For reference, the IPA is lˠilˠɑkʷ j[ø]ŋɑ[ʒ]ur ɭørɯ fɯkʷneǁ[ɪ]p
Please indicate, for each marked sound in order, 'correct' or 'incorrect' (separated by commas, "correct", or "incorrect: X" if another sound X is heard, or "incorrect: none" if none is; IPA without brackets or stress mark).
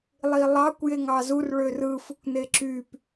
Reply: incorrect: e, incorrect: z, incorrect: y